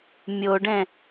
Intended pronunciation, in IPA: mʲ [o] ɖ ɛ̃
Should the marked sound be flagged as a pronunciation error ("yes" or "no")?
no